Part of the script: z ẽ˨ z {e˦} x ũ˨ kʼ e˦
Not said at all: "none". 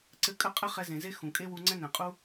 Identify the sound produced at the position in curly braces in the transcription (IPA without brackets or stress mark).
e˦